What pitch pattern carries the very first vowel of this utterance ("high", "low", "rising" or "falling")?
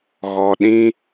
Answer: low